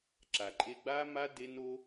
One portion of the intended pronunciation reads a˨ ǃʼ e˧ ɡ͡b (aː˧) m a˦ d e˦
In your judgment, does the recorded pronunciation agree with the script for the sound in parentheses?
no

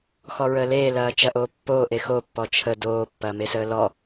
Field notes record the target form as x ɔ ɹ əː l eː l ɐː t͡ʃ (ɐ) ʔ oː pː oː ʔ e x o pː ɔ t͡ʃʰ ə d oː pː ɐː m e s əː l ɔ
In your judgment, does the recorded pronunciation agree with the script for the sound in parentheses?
yes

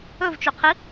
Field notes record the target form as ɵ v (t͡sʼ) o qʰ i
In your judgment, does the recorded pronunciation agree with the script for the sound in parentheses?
no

